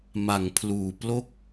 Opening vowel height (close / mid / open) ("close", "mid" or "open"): open